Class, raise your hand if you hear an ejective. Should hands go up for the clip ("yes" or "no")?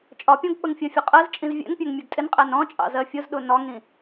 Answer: yes